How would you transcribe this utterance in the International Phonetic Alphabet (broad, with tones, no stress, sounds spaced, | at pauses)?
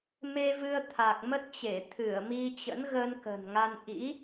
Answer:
m e˧ v ɨ˧ ə̯ t̪ʰ a˨˩ k̚ m ə˦˥ t̚ t͡ɕ e˧˩ t̪ʰ ɨ˧˩ ə̯ m i˧ t͡ɕ ə̰˧˥ n ɣ ə˧ n k ə̤˨˩ n ŋ a˧ n ʔ ḭ˧˥